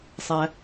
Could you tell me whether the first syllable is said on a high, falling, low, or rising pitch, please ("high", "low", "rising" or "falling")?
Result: low